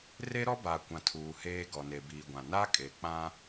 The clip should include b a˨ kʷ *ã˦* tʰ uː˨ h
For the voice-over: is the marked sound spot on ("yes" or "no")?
no